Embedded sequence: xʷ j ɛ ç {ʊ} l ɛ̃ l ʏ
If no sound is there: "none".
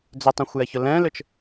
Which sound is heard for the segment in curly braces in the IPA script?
ʊ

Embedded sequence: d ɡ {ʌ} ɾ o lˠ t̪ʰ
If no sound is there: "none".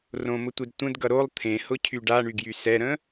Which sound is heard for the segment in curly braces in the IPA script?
ʌ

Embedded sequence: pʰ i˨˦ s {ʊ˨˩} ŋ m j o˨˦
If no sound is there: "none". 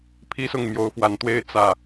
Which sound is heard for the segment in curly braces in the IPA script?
ʊ˨˩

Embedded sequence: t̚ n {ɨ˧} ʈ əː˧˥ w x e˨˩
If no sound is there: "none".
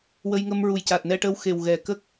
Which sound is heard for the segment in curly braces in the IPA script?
ɛ˧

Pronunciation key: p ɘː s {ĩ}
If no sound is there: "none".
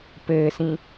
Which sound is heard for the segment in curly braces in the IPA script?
ĩ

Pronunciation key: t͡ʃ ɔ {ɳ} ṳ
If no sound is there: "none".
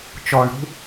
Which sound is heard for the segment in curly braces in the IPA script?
ɳ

